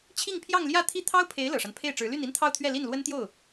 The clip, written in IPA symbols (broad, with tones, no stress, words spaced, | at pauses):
t͡ɕʰi˥˧ŋpʰjɑ˥˧ŋljä˥˧ t̪ʰi˥˩ t̪ʰɑ˥ʊ̯pʰe˧˥ɪ̯ lɤ˨˩ʂa˦npʰe˥˩ɪ̯ʈ͡ʂɻ̩˧˥ ly˥˩ni˥nt̪ʰɑ˥˧ʊ̯t̪ʰɥɛ˥˧ li˥˩nlwə˥nt̪jo˥˩ʊ̯